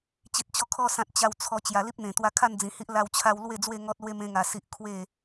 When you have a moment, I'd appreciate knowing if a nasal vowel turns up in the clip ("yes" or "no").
yes